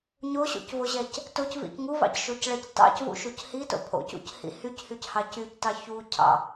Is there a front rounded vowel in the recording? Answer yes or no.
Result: yes